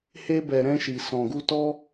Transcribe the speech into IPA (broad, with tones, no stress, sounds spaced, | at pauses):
h e˧ b ɛ˨ ɾ ɛ̃˧ ʃ i˨ s ɔ̃˨ ɡ u˧ t ɔ˧